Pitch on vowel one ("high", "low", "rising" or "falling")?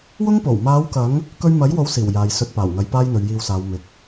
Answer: high